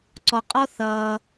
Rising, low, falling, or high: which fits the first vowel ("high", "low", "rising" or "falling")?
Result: low